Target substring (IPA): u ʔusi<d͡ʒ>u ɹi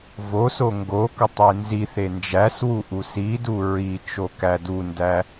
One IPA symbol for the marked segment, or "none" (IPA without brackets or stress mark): d